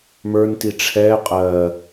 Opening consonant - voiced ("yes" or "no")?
yes